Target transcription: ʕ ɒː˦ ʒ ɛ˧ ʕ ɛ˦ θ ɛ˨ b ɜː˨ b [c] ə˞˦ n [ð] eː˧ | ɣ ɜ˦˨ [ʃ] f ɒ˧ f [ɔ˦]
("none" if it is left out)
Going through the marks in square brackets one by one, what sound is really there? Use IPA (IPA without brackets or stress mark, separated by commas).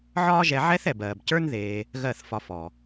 c, ð, θ, ɔ˨